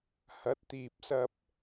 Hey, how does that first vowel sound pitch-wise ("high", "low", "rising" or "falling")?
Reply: rising